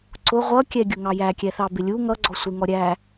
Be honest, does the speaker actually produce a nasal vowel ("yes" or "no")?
no